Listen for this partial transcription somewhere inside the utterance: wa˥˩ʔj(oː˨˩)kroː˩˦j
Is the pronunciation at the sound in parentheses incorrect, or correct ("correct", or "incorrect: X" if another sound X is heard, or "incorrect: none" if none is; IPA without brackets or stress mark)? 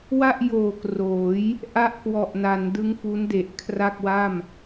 correct